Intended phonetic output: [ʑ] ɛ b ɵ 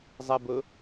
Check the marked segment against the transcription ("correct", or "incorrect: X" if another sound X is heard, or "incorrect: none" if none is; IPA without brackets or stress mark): incorrect: zˤ